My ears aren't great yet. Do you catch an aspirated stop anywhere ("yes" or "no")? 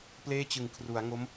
yes